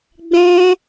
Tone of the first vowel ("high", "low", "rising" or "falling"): high